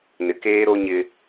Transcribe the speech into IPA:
n ɪ˨ k eː˦ ɾ o˦ ɲ ɪ˦

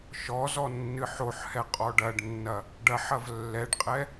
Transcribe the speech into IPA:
ʃ ɔ z ɔ nː ɨ ħ o ħ h ɛ qʼ ɔ ɖ ɐ ɖ nː ɐ | ɖ ɐ ħ ɐ v lː ɛ ɖ qʼ ɛ

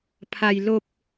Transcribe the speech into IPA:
pʰ a˧ j l o˧ p̚

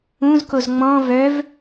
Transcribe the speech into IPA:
ũ z k o z ŋ͡m ɔ̃ v œ v

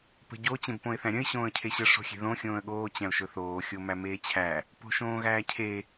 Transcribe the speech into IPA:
p ə̤ ɟ o t͡ɕ ẽ b p õ ɪ̯ θ æ̃ ɾʲ ə̃ ɪ̯ ɕ õː ə̯ cʰ e ɕ ə ʂ o̤ xʲ e̤ ð õ xʲ õː ə̯ ɠ oː t͡ɕ æ̃ ʊ̯ ʃ ɵ θ oː xʲ o m æ m eː t͡ɕʰ æ | p o̤ ʃ õː ɣ æː cʰ e

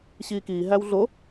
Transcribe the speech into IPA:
ɕ iː k iː ɦ æ w ɮ o

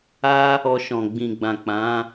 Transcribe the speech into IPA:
a˦ | ɔ˧ ʃ ɔ̃˨ ɡ͡b ĩ˨ ɡ͡b ã˨ k͡p ã˨˦

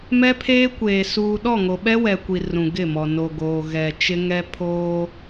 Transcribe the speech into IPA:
m ɛ˦ pʰ eː˦ kʷ eː˨ s uː˨ ɗ ɔ˦˨ ŋ o˨ ɓ ɛ˦ w ɛ˨ kʷ i˨ r ũ˨ ɡ ɪ˦˨ m ɔ˨ n o˨ ɡ oː˨ ɣ ɛ˨ t͡ʃ ɪ˦ ŋ ɛ˦ pʰ oː˦

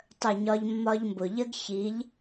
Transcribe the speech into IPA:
tˤ ə˦˨ ɲ ɒ˦ ʎ mː ɒ˦ ʎ m b ʊ˨ ʎ ə˦ ɡ ç i˨˦ ʎ

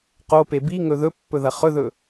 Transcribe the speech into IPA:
q o p e b i ŋ ɵ ð ɵ pː ɵ ð ɐ χ ɵ ð ɵ

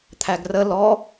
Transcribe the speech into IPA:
t̪ʰ æ ɡ r ə l ɔ

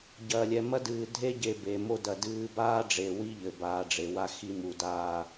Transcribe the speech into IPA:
ɟ ɐː˨ lʲ ɛ˨ m ɐ˦ d ɨː˨ dʱ e˦ ɟ e˨ b e˨ m o˦ d ɐ˨ d ɨː˦ b aː˦ ɖ͡ʐ e˨ w i˦ ʎ ɘ˨ b aː˨ ɖ͡ʐ e˨ w a˦ x i˦ m u˨ d aː˦˨

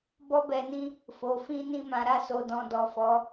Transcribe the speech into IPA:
b ɔ˦ b ɛ˧ n ĩ˦ | f o˨ f ĩ˧ n ĩ˧ m ã˨ ɾ a˧ s o˨ d ɔ̃˨ d ɔ˨ f ɔ˨˦

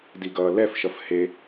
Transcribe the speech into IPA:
d i ɡ ʌː l ɛ f ʃ ʌ f h e

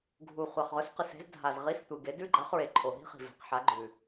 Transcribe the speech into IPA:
ɡʱ u˨˩ χʷ a˨˩ χ ʁ ɵ˨˥ s q ɨ˨˩ s e̤˨˥ z dʱ a˨˩ z ʁ i˨˥ s tʷ ɨ˨˩ ɡ e˨˥ d ʉ˥ ɡ͡ǃ a˨˥ χ ɹ e˨˩ ǃʰ o˨˩ ɦ i̤˥ χ i̤˨˩ v e̤˨˥ q ħ a˨˥ ɡ͡ǃ ʉ˨˩

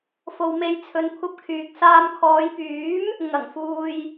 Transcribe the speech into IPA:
f o˧ w m e˧ j t͡sʰ ɵ˧ n kʷʰ ɐ˧ p̚ kʰ yː˨ k̚ s aː˧ m kʰ ɔː˨˧ j p yː˨˥ m | ŋ ɐ˨˩ ŋ f uː˨ j

